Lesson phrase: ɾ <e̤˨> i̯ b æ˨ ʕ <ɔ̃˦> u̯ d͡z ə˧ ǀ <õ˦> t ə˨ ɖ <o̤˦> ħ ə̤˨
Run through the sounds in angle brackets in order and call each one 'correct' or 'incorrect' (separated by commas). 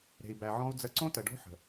correct, correct, correct, correct